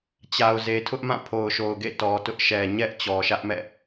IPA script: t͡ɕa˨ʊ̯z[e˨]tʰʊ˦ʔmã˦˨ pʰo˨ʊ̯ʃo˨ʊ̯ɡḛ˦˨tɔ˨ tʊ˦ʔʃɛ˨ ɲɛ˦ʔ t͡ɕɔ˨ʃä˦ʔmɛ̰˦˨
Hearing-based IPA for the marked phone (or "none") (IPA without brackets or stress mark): e˨